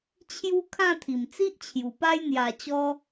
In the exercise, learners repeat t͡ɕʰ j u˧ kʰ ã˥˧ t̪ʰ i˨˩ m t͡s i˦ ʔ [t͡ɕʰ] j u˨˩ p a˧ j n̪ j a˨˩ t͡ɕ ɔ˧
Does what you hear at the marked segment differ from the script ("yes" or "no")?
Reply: no